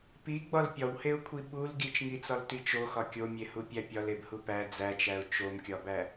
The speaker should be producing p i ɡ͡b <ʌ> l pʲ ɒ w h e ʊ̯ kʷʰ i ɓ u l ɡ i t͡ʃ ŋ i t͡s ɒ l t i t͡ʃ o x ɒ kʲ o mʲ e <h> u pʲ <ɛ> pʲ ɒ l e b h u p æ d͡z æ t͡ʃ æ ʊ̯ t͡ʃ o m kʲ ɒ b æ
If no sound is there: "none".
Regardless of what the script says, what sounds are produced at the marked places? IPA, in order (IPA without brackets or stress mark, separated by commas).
ɒ, h, æ